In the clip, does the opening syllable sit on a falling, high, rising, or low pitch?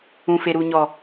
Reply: low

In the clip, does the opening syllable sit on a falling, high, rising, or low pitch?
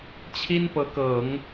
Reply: high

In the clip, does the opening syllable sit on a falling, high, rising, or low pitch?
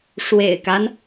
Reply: low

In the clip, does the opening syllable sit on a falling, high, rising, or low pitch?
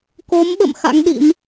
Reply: rising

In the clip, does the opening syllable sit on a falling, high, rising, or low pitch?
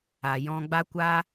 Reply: low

